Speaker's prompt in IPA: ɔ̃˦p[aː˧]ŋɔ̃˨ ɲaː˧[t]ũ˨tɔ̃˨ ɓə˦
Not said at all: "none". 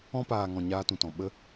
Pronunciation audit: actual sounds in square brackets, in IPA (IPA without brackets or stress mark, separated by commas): aː˨, t